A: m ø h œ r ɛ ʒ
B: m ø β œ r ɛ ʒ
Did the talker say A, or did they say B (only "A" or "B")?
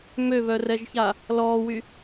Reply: B